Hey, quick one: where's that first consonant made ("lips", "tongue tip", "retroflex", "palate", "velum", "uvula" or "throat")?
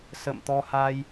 tongue tip